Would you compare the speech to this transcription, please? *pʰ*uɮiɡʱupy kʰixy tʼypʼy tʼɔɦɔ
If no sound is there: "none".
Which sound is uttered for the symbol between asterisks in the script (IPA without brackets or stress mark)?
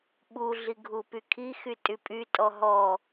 ɓ